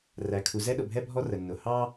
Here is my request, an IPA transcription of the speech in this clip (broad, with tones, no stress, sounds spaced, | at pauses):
r æ˩ kʰ u˩ z ɛ˥ ɗ ʊ˩ bʱ ɛ˥ bʱ ɔ˥ r ə˩ nː ʊ˩ h ɑ˥